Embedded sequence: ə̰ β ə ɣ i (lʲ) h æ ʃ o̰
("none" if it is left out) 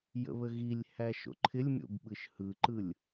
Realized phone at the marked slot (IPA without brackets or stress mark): lʲ